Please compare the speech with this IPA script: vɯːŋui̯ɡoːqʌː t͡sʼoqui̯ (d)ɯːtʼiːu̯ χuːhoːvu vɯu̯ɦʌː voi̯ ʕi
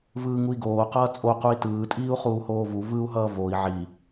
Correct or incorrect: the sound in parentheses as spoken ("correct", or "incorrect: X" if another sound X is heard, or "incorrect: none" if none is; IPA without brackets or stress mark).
incorrect: t